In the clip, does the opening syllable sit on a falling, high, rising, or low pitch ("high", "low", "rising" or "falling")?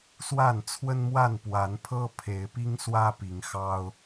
falling